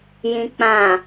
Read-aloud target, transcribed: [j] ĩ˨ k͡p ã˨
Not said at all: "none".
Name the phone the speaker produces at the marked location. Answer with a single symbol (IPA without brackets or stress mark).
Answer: j